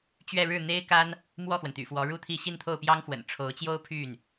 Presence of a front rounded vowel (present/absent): present